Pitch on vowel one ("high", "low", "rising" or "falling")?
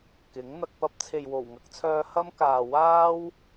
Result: rising